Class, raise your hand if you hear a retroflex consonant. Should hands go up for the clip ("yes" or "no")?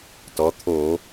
no